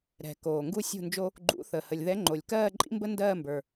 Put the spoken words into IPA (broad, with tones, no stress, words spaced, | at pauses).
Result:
ɾɛ̤˨˩ koː˨˩ŋɡu˥sʲṳ˥˧nd͡ʒo˥ | ɡ͡ǃṵ˧˥θə˨˩ hə˨˩lʲðɛ˧˥ŋ͡ǃo˨˩lʲ kɜː˥˧ǃʼḭ˥mbə˥ ndɜː˥˧mbə˞˨˩